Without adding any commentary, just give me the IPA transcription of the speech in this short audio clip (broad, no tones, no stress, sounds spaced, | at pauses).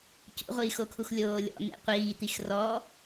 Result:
c ṵ ʁʷ iː x o kʰ u x lʲ oː lʲ ɔ̰ n̪ ḛ qʷ iː t̪ i x r ɔ